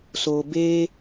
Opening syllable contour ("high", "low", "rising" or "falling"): low